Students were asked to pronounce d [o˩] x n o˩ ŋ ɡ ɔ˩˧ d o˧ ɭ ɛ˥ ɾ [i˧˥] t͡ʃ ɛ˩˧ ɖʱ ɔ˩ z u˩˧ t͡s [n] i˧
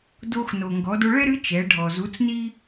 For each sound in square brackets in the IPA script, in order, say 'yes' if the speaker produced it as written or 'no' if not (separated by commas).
no, no, yes